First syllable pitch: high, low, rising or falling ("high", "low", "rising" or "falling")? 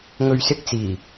low